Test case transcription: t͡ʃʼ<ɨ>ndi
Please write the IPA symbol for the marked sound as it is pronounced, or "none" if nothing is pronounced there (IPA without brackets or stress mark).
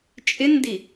ɪ